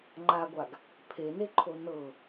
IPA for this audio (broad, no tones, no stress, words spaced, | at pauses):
ŋ͡ǃaɡʷaɡ | pʰeneǃʰo nɤ